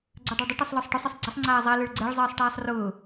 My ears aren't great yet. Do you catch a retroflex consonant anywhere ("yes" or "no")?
yes